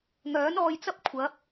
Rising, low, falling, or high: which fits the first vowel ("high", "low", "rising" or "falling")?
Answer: rising